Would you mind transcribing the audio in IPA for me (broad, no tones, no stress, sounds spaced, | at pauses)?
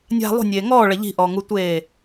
nʲ a̤ lˠ ṳ nʲ eː ŋ ɔː ɭ ɐ ʎ i̤ ʔ ɔː ŋ u tʷ eː